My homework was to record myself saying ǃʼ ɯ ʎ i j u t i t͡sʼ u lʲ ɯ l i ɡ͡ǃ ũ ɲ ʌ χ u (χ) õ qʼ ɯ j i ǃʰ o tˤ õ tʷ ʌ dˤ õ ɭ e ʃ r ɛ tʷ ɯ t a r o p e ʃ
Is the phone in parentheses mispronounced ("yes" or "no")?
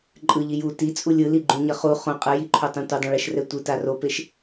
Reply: no